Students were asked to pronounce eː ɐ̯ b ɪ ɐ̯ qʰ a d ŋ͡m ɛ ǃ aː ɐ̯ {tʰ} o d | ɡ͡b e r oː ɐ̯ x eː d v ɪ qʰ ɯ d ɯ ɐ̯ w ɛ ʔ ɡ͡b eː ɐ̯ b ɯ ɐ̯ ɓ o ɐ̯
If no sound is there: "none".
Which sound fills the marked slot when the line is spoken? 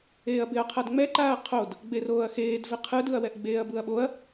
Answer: qʰ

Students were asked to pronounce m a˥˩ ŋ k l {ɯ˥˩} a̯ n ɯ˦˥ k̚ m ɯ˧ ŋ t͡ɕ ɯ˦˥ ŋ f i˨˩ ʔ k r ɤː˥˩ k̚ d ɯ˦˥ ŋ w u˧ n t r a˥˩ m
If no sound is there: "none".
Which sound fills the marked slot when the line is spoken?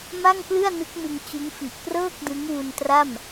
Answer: ɯ˥˩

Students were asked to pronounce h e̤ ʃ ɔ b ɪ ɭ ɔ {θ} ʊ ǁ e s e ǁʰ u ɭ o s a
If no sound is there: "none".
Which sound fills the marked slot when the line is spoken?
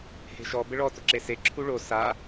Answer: t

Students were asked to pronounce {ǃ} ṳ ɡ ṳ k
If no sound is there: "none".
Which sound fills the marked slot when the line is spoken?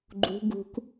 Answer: ɡ͡ǃ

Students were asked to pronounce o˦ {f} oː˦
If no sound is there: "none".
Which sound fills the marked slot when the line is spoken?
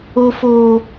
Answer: f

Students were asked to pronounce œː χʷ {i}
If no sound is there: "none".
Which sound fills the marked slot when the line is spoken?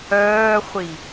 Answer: i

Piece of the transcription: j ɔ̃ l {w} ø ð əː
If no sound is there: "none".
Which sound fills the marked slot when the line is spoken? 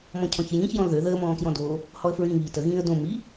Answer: ð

